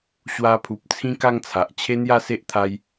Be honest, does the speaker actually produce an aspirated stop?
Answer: yes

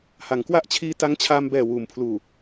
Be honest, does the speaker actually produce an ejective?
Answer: no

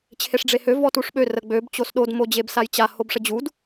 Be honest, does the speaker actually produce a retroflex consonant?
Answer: yes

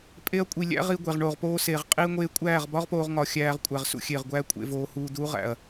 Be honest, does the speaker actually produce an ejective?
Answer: yes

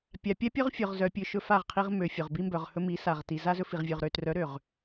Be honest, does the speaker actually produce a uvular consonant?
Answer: yes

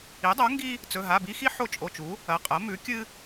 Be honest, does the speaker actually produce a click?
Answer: no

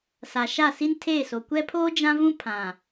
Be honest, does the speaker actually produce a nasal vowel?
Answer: yes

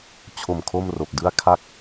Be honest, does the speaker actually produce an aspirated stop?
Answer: yes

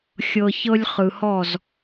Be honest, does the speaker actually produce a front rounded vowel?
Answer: no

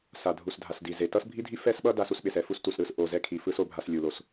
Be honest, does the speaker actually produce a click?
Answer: no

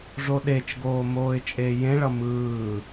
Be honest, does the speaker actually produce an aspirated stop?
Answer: no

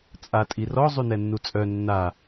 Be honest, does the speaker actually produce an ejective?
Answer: yes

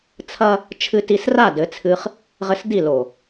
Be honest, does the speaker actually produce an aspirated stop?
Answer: yes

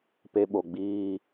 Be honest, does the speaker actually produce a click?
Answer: no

